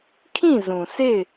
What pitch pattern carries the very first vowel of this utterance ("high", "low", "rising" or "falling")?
falling